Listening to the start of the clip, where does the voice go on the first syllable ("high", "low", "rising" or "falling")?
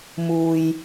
low